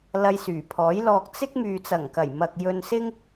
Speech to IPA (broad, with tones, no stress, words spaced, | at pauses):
lɐ˧jsyː˨˩pʰɔː˨˥jlɔː˧k̚ t͡sɪ˥k̚ myː˨t͡sɐ˨˩ŋkɐ˨˩jmɐ˨k̚ jɵ˧nsɪ˥ŋ